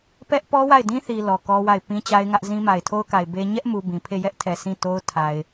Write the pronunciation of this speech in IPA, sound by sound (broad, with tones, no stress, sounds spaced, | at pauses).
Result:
p ɛ˦ ʔ p ɔ˦ w a˦˨ ɪ̯ d ĩ˦ θ i˨ l ɔ˨ k ɔ˦ w a˦˨ ɪ̯ p ĩ˦ t͡ɕ a˦ ɪ̯ ŋ ä˦ ʔ z ĩ˦ m a˨ ɪ̯ tʰ o˦ ʊ̯ k a˨ ɪ̯ b e˦ ɲ ɛ˦ ʔ m u˨ b ĩ˨ pʰ e˦˨ j ɛ˦ ʔ tʰ ɛ˨ s ĩ˦˨ t o˦ ʊ̯ tʰ a˨ ɪ̯